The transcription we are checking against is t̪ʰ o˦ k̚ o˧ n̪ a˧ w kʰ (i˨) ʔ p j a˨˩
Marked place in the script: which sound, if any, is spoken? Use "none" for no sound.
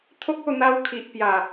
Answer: i˨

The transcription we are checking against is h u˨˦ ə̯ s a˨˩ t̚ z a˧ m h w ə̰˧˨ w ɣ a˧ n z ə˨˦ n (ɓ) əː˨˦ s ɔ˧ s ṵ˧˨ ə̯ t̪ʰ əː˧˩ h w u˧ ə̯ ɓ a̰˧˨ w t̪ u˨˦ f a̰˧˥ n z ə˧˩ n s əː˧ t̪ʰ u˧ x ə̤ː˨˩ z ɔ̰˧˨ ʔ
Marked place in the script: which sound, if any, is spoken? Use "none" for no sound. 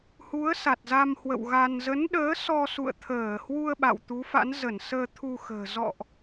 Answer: ɗ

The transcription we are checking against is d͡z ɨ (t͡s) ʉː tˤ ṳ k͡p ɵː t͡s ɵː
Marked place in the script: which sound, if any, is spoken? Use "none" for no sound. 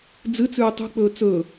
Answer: t͡s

